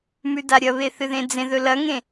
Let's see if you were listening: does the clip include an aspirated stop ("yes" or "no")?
no